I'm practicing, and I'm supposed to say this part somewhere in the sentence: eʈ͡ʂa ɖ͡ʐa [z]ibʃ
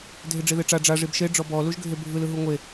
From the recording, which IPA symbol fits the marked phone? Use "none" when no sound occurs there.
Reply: ʐ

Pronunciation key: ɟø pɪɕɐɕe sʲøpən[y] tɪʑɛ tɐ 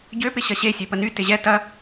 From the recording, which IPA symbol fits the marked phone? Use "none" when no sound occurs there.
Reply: y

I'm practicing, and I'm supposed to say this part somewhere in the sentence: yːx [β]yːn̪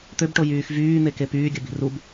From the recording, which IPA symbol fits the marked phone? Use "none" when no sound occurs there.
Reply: v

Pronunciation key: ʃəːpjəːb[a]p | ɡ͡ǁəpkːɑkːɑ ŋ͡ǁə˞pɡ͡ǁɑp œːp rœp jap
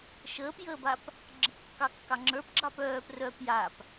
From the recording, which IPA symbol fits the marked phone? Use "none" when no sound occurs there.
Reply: a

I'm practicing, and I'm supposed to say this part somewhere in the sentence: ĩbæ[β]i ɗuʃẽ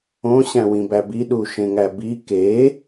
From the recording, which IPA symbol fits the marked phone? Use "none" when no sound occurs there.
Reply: b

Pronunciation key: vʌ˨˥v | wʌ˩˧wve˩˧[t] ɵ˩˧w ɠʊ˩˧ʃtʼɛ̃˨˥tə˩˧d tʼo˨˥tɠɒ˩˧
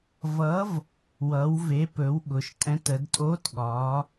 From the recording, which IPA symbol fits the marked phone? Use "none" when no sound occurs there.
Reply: p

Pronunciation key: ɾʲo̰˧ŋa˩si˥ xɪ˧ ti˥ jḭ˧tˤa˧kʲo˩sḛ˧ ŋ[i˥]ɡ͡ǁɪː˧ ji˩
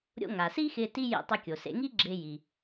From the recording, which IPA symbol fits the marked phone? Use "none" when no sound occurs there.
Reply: i˥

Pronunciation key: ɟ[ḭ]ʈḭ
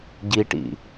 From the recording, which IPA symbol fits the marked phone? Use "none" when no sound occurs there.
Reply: i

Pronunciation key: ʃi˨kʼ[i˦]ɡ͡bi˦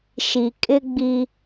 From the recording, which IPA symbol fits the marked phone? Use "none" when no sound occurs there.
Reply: ɪ˦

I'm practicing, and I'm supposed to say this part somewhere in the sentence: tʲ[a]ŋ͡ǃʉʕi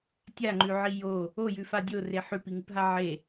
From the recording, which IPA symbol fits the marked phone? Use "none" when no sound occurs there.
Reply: a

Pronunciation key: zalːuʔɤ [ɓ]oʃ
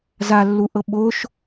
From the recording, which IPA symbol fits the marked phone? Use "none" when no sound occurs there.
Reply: ɓ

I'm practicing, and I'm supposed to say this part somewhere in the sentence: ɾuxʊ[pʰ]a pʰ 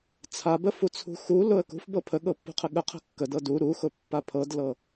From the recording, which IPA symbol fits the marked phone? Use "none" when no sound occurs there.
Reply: pː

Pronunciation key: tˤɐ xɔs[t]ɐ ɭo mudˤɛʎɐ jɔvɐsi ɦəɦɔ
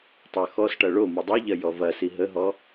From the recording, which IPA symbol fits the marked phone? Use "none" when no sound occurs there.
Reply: ʈ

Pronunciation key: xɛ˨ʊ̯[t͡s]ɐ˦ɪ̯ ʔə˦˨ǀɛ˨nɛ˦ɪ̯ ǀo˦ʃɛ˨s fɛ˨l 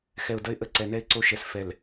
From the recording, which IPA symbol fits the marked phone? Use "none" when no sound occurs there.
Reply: d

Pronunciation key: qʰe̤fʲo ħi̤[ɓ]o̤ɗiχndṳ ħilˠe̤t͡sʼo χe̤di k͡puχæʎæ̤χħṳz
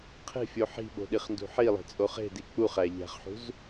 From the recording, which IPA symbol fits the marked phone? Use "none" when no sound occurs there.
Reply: ɓ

